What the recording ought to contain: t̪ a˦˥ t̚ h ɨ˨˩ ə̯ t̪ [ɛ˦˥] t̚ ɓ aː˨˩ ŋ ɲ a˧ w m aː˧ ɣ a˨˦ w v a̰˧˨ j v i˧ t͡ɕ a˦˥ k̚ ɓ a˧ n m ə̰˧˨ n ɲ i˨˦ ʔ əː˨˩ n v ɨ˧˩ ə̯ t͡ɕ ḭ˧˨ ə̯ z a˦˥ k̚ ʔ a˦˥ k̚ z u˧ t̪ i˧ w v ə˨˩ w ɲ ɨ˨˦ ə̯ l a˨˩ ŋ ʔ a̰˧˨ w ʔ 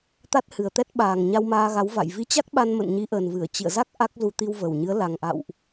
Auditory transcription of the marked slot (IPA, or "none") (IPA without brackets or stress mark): ɛ˦˥